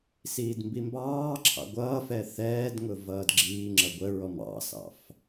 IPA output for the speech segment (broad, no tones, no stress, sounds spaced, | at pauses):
s iː d m b i m b ɑː ǁʰ ɑ̰ ɡʷ ʌː f ɛ θ ɛː d ŋ ʊ v ʌː d ɡ͡ǁ iː ŋ͡ǁ ʌ ɡʷ ə ɹ ɔ m ɑ̰ s ɑ̰ f